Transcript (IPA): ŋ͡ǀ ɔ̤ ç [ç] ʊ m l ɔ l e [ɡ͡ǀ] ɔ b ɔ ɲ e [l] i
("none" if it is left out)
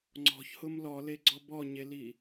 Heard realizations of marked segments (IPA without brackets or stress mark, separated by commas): h, ɡ͡ǀ, l